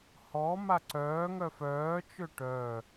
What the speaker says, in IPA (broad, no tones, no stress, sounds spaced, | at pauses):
h ɔ m a ǀ œː ŋ œ f œː t͡ʃ ø ʈ œ